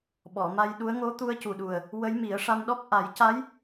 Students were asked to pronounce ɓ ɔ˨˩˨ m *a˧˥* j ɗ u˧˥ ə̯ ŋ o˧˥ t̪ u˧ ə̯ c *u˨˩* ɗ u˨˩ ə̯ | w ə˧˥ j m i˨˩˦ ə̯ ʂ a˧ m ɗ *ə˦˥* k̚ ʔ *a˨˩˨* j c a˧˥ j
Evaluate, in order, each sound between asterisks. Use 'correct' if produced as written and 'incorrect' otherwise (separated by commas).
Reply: incorrect, correct, incorrect, incorrect